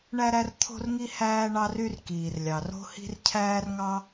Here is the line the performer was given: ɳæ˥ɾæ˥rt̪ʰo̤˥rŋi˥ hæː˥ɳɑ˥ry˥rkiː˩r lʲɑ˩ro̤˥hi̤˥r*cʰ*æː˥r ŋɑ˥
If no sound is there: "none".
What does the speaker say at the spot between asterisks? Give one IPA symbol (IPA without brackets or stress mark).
cʰ